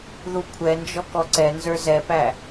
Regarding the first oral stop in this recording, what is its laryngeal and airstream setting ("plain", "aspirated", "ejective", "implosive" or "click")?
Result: aspirated